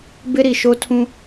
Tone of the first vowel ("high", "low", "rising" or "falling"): high